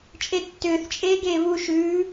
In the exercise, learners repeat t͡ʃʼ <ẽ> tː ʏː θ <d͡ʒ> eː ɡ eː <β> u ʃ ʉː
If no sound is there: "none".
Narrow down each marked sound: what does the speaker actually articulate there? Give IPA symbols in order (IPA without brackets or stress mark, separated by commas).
e, t͡ʃʼ, β